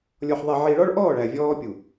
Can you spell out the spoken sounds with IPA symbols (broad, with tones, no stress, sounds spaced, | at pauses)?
lʲ ɔ˨ ħ ðˤ e˨ ʕ i˨ ɭ ɔ˦ ɭ ʔ ɔː˦˨ ɭ æ˨ vʲ ɔː˦ pʲ u˨